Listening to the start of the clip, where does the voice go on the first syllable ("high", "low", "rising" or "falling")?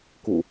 low